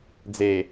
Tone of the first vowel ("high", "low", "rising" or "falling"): low